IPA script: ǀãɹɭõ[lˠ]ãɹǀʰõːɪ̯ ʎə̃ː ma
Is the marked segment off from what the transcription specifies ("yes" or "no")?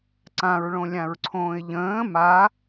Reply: yes